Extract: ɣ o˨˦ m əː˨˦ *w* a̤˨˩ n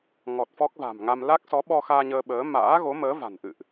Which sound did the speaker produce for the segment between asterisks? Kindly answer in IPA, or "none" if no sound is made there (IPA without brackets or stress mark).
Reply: v